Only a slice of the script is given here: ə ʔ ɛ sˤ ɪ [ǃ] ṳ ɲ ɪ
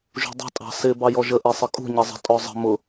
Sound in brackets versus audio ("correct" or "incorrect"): incorrect